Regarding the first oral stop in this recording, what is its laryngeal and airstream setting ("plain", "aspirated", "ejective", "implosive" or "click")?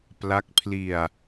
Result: plain